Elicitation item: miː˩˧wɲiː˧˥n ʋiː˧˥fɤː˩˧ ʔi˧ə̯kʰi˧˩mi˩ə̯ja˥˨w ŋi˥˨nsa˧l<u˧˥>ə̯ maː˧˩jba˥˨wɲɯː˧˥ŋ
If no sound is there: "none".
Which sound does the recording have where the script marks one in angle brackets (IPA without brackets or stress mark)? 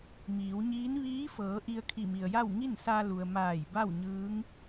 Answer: u˩